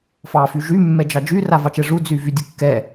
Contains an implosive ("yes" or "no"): no